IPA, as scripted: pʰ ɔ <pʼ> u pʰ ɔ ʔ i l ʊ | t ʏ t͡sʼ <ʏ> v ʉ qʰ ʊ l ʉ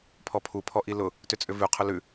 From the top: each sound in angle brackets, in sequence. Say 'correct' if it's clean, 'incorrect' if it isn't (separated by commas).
incorrect, correct